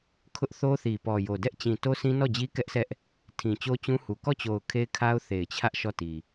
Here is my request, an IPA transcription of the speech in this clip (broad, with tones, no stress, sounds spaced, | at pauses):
kʰ ʊ˦ ʔ θ o˦ θ i˨ p ɔ˨ j o˨ d ɛ˦ ʔ t͡ɕ ĩ˨ t o˦ s ĩ˦ n ɔ˦˨ d͡ʑ i˦ k ɛ˦ ʔ s ɛ˦ ʔ | tʰ ĩ˨ t͡ɕ o˦ t͡ɕ ũ˦ h u˨ k ɔ˦˨ t͡ɕ o˨ ʊ̯ kʰ e˦ ɪ̯ kʰ a˦ ʊ̯ θ e˨ ɪ̯ t͡ɕʰ ä˦ ʔ ʃ ɔ˦˨ t i˨